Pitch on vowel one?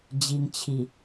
low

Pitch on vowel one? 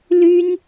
high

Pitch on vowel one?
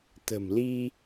low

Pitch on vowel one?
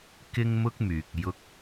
high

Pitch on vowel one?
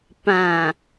low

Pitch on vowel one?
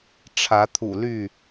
rising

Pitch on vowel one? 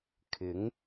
rising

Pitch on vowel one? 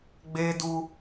high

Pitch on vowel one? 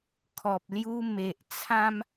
low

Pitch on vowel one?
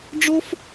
high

